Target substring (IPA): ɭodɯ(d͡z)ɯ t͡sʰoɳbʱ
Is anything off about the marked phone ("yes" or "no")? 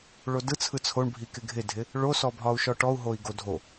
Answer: yes